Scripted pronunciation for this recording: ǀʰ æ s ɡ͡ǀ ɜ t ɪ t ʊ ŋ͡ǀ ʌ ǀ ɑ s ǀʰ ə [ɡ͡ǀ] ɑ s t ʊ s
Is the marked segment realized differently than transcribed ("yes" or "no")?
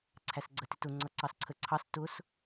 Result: yes